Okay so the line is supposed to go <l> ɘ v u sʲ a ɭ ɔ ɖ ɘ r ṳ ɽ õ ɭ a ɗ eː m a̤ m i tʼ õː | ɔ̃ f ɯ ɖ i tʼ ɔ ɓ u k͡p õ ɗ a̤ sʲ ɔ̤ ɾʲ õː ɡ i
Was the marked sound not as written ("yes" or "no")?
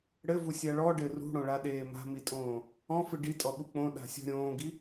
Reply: yes